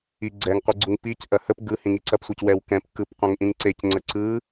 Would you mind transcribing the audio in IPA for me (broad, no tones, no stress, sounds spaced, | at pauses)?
i ɡ͡ǀ ɛ ŋ qʷ ɯ ɡ͡ǀ u ŋ p i c ʔ ɐ h ə p ɡ ɯ h ĩ ŋ i ǀ ɐ p sʷ e c w ɛ w k ɛ̃ p k ɯ p qʷ ɛ̃ ŋ ʔ ĩ ŋ ǀ e c ŋ͡ǀ ə ǀ ɯ